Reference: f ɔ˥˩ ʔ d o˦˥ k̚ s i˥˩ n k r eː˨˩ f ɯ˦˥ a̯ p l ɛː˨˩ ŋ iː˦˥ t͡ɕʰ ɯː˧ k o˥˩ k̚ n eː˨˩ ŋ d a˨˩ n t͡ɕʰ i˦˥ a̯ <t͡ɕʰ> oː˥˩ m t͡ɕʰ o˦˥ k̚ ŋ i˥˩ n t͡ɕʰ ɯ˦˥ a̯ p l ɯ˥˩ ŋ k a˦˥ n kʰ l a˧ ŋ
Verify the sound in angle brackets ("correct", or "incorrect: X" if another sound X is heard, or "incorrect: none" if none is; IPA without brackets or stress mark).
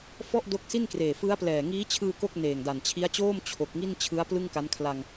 incorrect: t͡ɕ